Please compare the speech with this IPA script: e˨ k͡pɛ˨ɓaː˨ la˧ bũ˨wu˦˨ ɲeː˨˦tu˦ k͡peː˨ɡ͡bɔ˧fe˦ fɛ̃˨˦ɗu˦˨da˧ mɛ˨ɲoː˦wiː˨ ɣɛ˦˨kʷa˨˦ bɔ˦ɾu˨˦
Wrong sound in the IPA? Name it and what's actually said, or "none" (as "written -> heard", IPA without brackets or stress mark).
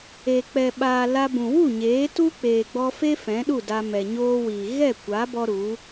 none